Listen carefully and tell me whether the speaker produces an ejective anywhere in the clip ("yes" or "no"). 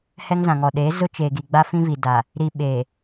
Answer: no